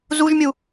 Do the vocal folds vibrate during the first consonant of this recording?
yes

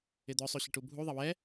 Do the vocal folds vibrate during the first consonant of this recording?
yes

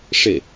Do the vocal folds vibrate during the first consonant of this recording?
no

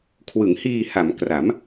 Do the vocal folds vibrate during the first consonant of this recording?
no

